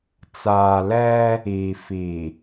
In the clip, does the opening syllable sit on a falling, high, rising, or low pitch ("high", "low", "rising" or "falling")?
low